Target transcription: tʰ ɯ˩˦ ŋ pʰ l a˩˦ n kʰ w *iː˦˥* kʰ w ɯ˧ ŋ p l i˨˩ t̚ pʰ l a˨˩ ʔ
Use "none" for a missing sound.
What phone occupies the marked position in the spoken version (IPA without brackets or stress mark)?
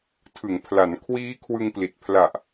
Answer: iː˦˥